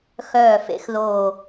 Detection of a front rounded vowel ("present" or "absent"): present